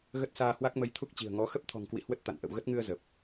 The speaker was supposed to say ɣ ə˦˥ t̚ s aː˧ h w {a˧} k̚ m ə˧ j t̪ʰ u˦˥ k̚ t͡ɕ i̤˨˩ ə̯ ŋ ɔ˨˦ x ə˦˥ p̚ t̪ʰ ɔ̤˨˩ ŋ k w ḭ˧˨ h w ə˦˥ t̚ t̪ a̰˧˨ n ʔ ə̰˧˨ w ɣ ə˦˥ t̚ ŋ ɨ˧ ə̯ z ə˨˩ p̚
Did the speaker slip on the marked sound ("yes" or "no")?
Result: yes